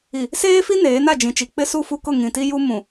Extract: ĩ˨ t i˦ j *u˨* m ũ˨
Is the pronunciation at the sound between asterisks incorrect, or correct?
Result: incorrect